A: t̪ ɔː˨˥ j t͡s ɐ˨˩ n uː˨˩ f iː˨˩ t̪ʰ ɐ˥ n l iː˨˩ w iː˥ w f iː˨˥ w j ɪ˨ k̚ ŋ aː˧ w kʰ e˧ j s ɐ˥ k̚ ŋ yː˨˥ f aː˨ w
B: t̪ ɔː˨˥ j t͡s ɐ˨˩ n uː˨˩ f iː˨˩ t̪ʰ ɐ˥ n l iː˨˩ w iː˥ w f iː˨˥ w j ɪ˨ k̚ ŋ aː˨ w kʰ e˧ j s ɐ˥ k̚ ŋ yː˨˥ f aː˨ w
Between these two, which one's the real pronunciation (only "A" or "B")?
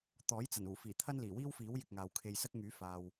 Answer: B